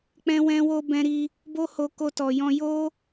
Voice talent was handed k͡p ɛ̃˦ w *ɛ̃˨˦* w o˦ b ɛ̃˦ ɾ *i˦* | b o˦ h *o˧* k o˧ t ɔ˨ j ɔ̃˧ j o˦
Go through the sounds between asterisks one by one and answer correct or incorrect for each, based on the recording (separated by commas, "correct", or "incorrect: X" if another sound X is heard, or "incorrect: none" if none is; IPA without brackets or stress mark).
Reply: incorrect: ɛ̃˦, correct, correct